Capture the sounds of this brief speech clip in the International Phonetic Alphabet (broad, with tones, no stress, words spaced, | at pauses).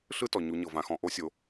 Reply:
ɬɯ˥tɔ˩ ɲu˩˧ɲɤ˩vã˩˧xɔ̃˩˧ ʔo˧˥sʲo˩˧